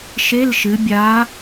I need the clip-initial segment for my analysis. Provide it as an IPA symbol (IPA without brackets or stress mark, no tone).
ʃ